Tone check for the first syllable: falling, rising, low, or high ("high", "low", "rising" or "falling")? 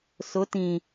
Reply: rising